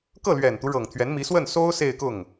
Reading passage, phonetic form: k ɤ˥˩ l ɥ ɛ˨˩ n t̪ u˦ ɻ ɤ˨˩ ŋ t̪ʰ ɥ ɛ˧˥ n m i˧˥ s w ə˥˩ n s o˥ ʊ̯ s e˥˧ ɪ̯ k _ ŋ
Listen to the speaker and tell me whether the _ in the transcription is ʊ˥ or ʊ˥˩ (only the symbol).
ʊ˥˩